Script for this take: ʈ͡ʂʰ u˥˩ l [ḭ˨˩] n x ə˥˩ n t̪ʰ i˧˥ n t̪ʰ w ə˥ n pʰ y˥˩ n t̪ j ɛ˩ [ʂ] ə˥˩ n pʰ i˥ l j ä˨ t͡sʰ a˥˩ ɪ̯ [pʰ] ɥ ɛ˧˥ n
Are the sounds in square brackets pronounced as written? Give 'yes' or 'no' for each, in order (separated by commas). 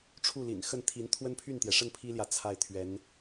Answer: yes, yes, no